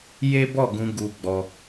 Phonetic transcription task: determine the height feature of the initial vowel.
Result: mid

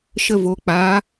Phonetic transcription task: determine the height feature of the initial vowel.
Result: mid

